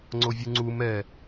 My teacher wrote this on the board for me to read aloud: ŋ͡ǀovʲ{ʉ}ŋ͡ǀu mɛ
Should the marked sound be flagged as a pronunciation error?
yes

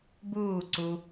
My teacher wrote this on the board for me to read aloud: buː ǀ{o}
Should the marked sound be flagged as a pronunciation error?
yes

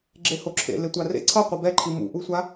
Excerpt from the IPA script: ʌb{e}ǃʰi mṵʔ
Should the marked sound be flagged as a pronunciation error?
yes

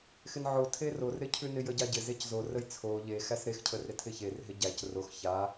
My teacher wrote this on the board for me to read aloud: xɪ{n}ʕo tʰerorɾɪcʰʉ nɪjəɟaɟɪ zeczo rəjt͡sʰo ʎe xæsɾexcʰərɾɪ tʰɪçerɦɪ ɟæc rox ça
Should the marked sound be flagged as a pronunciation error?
no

